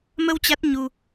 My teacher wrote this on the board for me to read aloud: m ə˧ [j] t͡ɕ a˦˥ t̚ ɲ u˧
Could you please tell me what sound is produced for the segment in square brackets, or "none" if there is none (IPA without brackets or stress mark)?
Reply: w